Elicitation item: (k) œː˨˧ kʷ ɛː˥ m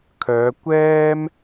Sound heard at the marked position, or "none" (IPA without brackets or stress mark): kʰ